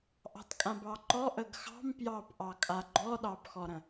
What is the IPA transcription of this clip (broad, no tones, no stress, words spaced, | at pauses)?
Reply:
ʔɑ̤tkʼãbɑǃɔ ʔəɡxɑ̤m pjɑpʔɑkʼa ɡ͡ǃɔɗɑbxɔɾə̃